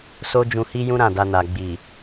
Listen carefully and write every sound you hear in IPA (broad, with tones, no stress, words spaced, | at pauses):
so˦d͡ʒũ˧hi˦jũ˦ ɾã˦˨da˧na˨ ɡ͡bi˨